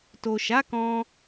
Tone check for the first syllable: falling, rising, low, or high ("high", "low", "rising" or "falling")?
low